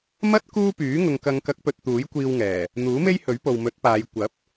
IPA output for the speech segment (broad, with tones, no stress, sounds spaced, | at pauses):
m ɐ˥ t̚ k uː˥ p yː˨˥ ŋ ʊ˨ ŋ k ɐ˨˧ ŋ k ɐ˨˥ k̚ p ɵ˨ t̚ t̪ uː˨˥ j kʷ iː˧ w ŋ ɛː˨˩ | n̪ uː˨˥ m e˥ j h ɵ˨˥ ɥ p o˨ w m ɵ˨˥ t̚ p aː˨˧ j kʷ ɐ˨˥ p̚